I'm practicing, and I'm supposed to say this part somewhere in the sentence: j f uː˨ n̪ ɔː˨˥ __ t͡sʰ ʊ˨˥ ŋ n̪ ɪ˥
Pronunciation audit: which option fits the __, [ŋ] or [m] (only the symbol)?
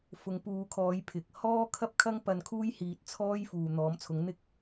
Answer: m